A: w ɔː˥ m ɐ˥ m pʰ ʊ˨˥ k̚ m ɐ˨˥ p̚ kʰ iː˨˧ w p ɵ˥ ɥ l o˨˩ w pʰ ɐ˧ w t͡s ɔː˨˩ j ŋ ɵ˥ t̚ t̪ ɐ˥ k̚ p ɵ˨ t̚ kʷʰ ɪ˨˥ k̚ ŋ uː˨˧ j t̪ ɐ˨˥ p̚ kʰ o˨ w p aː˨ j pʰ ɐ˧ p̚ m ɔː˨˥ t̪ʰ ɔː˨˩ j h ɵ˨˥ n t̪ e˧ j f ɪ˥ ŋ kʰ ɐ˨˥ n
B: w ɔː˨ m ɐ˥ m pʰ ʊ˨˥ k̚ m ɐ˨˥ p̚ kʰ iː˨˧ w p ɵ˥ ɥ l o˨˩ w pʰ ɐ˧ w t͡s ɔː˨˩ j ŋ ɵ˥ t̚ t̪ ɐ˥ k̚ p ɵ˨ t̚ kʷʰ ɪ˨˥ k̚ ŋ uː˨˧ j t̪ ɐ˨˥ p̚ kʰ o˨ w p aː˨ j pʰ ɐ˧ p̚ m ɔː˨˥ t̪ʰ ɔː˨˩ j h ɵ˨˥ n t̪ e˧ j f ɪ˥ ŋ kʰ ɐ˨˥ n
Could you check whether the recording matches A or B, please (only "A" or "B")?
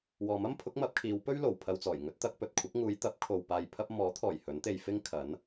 B